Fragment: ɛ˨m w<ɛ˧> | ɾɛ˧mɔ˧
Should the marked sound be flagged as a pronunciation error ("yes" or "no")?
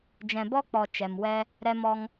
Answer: no